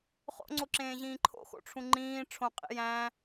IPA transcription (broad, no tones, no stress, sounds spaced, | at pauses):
χ o̰ ŋ͡ǀ o ǁ ẽː ʑ ĩː ǃʰ o̰ x o̰ ʈ͡ʂʰ ũ ŋ͡ǃ ĩː ʈ͡ʂʰ õ qʼ ḭ j æ̃